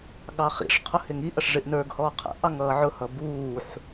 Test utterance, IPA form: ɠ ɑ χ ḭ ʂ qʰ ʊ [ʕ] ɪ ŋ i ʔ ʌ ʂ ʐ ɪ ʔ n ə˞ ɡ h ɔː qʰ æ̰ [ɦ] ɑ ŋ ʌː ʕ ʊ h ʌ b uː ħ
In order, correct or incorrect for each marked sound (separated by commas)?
incorrect, incorrect